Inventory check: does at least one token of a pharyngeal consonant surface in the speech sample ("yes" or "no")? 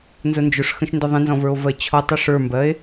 no